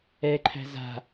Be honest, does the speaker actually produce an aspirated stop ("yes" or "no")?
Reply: yes